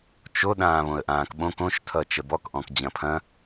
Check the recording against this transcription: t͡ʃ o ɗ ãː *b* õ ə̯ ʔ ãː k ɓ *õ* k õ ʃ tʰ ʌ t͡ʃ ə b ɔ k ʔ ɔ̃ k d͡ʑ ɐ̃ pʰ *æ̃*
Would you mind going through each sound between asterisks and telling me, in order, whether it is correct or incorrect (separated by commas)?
incorrect, correct, incorrect